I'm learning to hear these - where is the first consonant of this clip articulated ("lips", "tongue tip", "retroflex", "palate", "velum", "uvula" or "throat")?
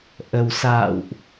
throat